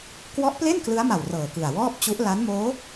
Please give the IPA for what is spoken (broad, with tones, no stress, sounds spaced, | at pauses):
k w ɔ˦˥ ʔ p l e˥˩ n k l ɯ˦˥ a̯ m a˨˩ w r ɤː˨˩ k ɯ˨˩ a̯ w ɔː˥˩ p̚ t͡ɕ u˦˥ ʔ l a˦˥ n m oː˦˥